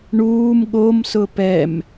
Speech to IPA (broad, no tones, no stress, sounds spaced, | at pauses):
ɳ uː m ɠ o m s ʊ p ɛ m